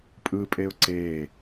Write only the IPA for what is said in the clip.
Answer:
pʼ ɯ pʼ e ʊ̯ ǀ eː

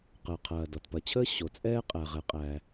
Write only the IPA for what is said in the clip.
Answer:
q əː˩ qʰ ɐː˩ d ɔ˩ t p ɐ˩ t͡ɕʰ əː˥ ɕ o˩ t͡sʼ ɛː˥ qʼ æ˩ ʁ ɛ˩ qʼ æ˩

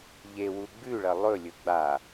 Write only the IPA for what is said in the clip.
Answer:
ʎ e w u ɡ͡b ʉ ɭ ɐ lˠ ɵ lʲ ɵ ɡ͡b a

